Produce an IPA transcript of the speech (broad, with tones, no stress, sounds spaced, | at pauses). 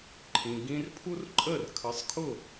ǃʰ ĩ˩ ɡ ĩ˧ r pʰ u˥ r ǃʼ ə˥˩ r kʰ ə˩˥ sˤ kʰ ʊ˥˩